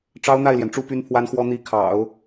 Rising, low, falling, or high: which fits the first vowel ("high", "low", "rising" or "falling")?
high